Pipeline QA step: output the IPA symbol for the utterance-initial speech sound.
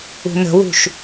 ṳ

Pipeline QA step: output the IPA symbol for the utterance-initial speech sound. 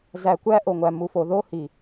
z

